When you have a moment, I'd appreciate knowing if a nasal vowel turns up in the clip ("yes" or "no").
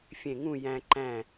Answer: yes